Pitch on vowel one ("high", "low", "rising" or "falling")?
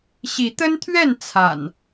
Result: rising